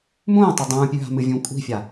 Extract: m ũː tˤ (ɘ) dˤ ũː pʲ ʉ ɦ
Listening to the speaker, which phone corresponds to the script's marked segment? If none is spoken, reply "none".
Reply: ɘ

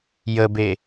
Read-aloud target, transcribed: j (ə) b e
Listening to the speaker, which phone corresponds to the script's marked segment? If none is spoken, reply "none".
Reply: ə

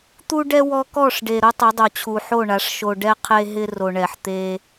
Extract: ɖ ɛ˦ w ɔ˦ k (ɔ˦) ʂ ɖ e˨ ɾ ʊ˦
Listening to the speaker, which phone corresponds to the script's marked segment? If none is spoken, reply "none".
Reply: ɔ˦˨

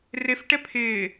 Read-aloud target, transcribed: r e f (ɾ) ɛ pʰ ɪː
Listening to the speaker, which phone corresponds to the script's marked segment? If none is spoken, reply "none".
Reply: ʈ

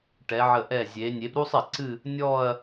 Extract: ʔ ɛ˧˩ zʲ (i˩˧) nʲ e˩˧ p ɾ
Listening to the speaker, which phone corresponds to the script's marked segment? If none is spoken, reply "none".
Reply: e˩˧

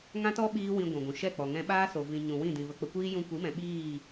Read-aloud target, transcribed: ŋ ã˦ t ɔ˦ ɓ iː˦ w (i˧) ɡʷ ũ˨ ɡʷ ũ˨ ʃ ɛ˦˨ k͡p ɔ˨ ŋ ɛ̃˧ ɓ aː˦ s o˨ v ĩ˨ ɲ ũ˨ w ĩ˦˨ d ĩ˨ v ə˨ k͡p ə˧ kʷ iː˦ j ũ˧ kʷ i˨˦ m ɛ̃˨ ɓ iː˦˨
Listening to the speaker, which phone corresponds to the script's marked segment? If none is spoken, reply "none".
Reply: ĩ˧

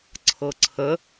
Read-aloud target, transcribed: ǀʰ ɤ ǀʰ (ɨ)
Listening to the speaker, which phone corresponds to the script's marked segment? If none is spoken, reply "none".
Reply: ə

